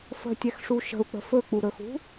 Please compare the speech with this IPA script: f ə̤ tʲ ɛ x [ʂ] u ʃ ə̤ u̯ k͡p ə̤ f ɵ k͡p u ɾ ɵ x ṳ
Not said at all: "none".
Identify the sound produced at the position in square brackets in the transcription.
ʂ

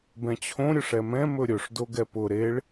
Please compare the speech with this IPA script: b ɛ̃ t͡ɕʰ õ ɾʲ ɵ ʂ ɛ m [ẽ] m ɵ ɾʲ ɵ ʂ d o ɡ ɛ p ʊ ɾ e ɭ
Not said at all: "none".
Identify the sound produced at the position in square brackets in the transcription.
ɛ̃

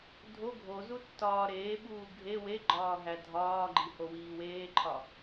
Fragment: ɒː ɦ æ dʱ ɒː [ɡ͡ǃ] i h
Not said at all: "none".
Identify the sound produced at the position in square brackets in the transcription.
ɡ͡ǃ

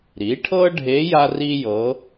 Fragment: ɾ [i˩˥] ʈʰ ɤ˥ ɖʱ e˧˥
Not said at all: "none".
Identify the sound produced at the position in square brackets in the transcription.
i˩˥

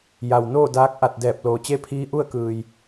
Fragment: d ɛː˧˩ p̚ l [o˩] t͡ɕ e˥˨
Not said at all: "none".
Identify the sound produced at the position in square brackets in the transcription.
oː˩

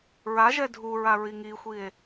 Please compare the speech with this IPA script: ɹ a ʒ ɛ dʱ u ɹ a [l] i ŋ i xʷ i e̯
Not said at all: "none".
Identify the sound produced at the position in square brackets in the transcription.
ɹ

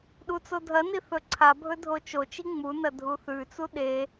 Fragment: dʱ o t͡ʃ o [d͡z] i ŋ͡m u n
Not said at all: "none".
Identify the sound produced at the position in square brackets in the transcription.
t͡ʃ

